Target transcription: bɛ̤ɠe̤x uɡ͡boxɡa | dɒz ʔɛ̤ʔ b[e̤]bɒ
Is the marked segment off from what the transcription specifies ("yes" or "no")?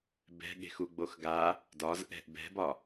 yes